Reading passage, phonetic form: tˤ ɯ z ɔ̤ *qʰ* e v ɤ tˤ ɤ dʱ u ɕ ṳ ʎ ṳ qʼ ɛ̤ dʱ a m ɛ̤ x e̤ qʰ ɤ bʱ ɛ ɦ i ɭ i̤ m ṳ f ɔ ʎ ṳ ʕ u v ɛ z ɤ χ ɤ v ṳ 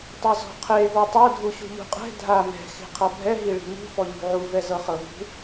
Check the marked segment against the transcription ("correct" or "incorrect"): correct